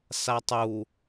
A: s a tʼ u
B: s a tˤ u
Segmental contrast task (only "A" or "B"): B